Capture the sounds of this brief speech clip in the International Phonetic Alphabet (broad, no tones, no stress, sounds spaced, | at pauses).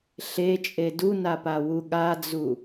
ɬ e t͡ʃʼ e d u n a p a w u ɠ a d͡z u